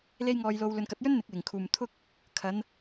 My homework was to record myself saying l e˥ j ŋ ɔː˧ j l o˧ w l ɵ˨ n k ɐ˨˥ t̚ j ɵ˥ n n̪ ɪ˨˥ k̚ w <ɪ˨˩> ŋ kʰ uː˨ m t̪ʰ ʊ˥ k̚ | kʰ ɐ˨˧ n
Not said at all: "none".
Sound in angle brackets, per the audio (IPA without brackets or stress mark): ɪ˨˩